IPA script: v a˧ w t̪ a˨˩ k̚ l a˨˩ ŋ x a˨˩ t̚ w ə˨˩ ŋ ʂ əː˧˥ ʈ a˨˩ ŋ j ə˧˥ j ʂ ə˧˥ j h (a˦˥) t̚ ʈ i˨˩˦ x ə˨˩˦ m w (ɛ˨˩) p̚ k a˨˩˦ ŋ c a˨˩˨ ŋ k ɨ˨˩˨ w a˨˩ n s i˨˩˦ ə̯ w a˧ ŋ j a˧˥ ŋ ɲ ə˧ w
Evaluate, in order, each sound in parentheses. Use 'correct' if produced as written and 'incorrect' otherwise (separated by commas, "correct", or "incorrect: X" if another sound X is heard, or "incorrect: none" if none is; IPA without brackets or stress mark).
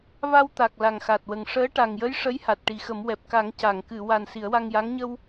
incorrect: a˨˩, correct